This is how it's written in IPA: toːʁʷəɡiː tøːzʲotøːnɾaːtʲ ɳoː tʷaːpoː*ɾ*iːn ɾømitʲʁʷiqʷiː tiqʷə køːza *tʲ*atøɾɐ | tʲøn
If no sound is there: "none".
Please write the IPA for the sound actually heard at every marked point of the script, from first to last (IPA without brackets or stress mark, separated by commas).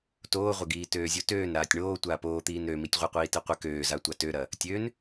t̪, tʷ